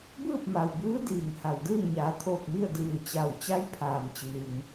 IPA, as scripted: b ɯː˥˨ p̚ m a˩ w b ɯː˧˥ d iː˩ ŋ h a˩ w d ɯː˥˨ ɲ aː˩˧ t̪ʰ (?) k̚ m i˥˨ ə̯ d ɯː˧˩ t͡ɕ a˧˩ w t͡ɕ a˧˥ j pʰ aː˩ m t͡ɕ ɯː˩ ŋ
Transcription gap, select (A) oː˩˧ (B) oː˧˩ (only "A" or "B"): B